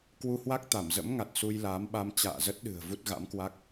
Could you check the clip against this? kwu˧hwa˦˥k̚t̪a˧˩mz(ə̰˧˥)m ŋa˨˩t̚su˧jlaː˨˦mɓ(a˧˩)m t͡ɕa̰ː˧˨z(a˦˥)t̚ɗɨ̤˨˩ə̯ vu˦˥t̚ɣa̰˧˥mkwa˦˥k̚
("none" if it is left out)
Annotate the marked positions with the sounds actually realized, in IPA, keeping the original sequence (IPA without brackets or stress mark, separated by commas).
ə̰˧˥, a˧, ə˦˥